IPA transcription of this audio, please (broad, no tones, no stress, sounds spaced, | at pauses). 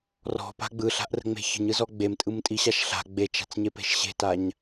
r ɔ̤ p a̤ ɡ͡b ɯ ɬ a̤ ʔ r ə̤ ŋ͡m e̤ ç ə̤ ɲ ɯ z ɔ ɡ͡b e m tʼ ɯ m tʼ i ɕ a ʃ ɬ a̤ ɡ͡b e t͡ʃ a̤ t͡s ɲ e p e̤ ʃ ɕ e̤ t a ɲ